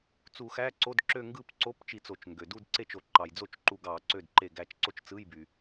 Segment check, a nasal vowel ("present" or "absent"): absent